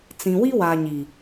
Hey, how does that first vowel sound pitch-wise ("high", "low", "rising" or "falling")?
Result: low